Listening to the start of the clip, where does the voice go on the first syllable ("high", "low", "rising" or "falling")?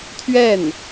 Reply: falling